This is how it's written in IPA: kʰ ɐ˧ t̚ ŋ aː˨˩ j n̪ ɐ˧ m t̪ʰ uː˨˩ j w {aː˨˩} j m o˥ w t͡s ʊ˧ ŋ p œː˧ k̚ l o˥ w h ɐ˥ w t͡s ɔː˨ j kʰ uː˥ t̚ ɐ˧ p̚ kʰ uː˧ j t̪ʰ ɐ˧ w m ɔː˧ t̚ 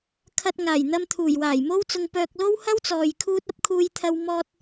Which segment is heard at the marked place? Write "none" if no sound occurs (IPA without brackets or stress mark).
aː˨˩